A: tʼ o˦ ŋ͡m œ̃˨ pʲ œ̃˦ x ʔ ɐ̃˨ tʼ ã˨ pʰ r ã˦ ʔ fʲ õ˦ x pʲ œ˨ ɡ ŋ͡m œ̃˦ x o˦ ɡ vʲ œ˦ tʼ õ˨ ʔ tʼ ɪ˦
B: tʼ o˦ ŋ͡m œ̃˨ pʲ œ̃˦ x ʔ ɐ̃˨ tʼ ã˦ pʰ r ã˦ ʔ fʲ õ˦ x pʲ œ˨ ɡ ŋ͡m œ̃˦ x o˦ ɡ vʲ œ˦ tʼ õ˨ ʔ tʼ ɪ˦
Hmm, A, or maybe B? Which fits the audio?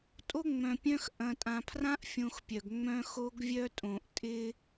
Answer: A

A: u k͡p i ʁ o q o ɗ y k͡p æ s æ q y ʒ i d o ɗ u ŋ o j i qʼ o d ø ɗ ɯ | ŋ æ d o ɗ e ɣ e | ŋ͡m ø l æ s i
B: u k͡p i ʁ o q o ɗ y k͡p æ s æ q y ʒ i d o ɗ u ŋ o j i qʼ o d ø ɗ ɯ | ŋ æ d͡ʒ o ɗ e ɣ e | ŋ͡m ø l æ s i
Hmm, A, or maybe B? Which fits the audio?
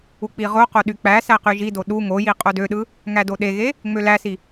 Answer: A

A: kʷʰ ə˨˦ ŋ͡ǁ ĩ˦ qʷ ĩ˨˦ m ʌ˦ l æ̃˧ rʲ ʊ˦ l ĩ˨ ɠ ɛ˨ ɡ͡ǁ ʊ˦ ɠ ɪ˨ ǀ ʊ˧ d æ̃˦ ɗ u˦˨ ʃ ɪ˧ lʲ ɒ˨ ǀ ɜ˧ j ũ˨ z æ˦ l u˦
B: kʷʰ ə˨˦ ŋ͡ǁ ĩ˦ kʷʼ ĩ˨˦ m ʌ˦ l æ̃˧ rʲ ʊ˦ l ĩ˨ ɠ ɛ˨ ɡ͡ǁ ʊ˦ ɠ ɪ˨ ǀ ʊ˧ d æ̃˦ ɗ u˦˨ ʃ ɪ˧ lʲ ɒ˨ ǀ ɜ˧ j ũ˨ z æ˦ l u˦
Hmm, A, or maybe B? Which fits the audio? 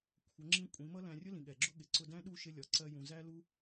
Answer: B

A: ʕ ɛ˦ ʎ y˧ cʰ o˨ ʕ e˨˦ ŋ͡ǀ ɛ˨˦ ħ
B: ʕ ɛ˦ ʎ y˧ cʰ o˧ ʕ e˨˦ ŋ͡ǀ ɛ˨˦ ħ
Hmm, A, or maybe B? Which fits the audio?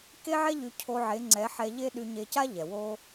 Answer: B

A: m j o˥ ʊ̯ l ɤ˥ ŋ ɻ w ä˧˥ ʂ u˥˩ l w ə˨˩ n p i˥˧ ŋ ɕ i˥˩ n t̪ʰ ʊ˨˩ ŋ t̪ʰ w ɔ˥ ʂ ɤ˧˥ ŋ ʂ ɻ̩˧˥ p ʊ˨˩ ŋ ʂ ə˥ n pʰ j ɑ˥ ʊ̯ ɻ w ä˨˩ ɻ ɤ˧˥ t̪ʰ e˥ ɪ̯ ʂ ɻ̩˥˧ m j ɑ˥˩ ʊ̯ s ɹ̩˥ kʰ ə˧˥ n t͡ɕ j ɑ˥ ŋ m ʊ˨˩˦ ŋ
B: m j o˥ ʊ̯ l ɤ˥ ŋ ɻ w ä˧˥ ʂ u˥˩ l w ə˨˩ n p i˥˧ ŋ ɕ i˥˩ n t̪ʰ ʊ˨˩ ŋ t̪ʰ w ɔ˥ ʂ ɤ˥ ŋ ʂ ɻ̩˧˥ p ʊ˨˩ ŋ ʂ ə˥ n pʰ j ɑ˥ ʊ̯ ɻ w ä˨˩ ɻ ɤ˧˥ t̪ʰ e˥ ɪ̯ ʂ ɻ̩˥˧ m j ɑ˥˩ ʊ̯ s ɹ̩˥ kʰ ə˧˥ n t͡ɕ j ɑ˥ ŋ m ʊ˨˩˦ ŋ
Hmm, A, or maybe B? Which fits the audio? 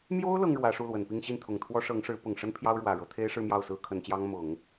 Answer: A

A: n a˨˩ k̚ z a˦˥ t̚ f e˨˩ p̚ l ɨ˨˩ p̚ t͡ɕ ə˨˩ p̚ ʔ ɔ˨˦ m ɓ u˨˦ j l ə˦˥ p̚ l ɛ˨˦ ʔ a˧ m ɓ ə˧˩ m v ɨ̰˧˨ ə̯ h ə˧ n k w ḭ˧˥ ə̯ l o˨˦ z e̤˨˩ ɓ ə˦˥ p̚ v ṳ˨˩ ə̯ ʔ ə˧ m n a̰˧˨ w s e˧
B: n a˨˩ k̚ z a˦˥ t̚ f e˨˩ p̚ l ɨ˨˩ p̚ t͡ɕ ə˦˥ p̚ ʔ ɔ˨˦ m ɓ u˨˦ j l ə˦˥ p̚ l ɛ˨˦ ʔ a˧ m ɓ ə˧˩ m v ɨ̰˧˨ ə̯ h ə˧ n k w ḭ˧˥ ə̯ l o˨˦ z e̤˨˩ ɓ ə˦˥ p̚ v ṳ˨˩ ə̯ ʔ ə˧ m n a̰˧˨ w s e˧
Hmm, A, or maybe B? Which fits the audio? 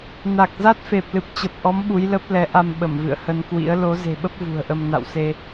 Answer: A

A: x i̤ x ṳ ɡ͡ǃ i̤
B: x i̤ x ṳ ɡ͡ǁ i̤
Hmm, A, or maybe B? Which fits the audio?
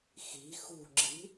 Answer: B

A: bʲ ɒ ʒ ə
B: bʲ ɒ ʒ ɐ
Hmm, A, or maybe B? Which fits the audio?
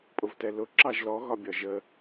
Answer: A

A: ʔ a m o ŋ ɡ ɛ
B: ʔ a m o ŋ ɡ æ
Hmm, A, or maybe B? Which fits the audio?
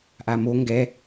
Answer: A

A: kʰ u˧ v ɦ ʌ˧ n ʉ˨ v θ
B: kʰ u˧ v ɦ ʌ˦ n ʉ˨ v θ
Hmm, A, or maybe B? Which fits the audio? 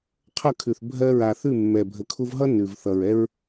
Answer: B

